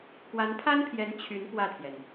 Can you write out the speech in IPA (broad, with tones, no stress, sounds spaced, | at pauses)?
k w a˧˥ n pʰ a˥ n pʰ j ɛ˧˥ n t͡ɕʰ y˧˥ n p w ä˥˩ t̪ʰ j ɛ˩ n